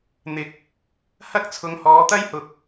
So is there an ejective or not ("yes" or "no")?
no